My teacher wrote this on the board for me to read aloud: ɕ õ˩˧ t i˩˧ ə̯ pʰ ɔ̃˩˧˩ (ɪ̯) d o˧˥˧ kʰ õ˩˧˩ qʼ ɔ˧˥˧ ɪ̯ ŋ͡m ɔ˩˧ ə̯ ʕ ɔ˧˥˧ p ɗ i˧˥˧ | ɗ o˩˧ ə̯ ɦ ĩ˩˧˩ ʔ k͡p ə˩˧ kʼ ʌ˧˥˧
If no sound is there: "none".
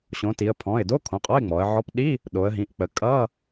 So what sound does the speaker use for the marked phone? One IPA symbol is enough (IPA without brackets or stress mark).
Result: ɪ̯